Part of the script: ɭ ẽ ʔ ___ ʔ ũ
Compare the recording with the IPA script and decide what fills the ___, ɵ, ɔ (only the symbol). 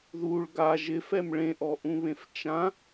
ɔ